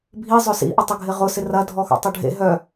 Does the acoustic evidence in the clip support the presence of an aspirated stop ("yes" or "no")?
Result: no